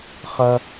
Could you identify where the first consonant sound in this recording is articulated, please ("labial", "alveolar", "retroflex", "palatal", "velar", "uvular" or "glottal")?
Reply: uvular